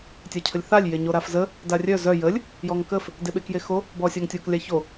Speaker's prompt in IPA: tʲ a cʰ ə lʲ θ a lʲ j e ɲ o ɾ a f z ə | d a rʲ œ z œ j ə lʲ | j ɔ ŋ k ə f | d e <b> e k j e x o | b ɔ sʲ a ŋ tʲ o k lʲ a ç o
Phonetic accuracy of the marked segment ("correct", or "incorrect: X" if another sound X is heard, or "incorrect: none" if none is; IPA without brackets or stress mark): incorrect: ɓ